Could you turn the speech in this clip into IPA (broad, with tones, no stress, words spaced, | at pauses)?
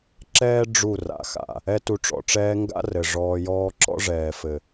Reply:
ǁɛː˦ ɖ͡ʐu˦˨ra̰˨xa̰˨ | ɛ˦tu˧ʈ͡ʂɔ̰˨ʈ͡ʂɛː˦ ŋɡa̰˦rɘ˨ ʐɔː˧jɔː˦ ǁɔ̰˦ʐɛː˨fɘ˨